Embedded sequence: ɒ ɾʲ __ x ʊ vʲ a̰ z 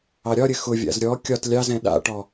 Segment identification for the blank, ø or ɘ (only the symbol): ɘ